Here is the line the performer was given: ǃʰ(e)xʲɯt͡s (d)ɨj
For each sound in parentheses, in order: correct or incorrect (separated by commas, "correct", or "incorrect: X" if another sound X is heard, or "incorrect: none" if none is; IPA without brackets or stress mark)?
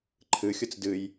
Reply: incorrect: ɨ, correct